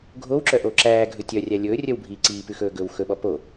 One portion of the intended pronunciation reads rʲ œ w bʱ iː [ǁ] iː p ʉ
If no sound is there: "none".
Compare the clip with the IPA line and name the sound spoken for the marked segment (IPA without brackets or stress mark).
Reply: ǀ